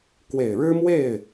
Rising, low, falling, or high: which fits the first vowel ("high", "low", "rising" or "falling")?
low